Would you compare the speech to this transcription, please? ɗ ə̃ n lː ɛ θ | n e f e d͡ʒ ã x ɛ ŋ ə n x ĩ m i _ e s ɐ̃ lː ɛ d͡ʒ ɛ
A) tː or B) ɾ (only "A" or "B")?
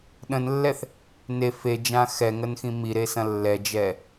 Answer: B